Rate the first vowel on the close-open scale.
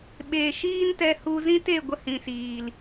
mid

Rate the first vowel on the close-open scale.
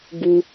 close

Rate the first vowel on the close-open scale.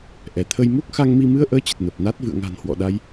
mid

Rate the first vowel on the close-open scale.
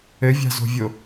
mid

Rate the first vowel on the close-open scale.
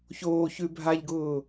mid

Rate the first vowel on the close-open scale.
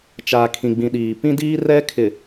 open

